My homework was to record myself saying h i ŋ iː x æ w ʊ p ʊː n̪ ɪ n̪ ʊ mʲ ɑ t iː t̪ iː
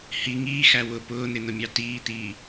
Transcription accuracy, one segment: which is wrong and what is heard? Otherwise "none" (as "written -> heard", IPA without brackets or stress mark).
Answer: none